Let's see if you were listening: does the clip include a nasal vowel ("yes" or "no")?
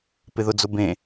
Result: yes